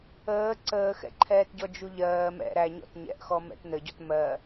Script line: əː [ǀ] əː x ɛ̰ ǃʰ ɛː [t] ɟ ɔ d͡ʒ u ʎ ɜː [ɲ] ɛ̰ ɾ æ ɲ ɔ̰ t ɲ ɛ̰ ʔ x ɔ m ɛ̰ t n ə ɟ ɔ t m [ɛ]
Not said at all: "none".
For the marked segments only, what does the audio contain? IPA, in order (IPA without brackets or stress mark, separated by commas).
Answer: ǀ, t, m, ɜ